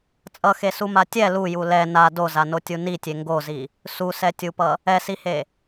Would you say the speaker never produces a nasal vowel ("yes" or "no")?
yes